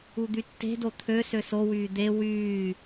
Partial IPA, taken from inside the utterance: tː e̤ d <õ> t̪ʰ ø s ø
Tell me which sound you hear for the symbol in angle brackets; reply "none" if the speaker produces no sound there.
o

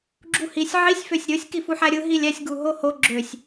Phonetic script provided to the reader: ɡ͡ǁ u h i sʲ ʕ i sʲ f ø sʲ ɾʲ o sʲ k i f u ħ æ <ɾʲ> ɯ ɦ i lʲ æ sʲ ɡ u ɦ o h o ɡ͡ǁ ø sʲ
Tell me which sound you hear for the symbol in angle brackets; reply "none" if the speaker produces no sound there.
ɾʲ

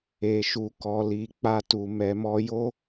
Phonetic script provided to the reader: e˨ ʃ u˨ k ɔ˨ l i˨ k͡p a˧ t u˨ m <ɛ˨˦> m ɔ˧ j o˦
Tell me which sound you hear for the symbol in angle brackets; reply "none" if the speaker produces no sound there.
ɛ˨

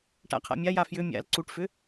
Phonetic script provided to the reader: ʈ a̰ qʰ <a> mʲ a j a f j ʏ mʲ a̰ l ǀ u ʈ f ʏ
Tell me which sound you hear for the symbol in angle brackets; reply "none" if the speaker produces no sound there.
a̰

